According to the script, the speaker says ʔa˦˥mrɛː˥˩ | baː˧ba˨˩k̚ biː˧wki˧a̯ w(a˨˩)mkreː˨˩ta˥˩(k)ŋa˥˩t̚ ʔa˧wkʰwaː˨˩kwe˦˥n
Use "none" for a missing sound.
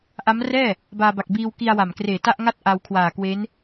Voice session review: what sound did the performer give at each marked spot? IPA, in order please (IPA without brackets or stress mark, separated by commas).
a˨˩, ʔ